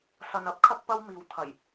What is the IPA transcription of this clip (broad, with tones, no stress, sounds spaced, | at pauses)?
s ɐ˨ n ɐ˥ p̚ kʰ ɐ˥ k̚ p ɐ˥ w m iː˧ w t̪ʰ ɐ˨˩ j